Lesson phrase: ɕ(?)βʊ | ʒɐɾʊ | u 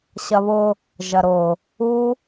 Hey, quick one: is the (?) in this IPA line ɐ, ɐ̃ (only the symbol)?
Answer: ɐ